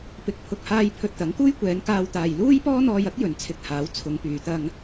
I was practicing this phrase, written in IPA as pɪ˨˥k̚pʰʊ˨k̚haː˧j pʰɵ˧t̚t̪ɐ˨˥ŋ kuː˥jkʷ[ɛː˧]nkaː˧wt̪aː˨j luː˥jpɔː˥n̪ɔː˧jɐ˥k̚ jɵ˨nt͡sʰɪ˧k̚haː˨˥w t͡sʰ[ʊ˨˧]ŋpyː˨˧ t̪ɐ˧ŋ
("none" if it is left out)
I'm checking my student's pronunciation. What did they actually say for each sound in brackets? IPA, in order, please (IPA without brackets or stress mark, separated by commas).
ɛː˨˧, ʊ˨˧